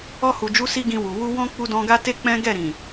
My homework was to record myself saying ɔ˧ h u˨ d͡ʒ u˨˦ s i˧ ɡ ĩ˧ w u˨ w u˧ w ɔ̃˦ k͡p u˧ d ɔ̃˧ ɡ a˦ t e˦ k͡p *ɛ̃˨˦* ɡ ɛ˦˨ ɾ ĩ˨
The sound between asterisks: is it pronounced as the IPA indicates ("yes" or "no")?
no